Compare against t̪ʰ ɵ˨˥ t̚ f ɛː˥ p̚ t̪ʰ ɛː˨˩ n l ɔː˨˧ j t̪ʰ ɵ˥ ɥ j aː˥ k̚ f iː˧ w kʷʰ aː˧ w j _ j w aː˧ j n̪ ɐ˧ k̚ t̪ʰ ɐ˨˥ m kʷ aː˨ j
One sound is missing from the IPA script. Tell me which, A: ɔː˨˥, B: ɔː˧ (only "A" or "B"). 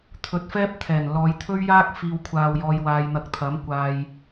B